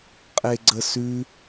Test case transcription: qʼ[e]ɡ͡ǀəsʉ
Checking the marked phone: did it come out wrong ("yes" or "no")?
no